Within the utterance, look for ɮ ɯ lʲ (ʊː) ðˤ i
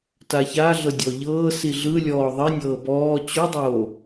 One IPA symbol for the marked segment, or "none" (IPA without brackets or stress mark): ɔː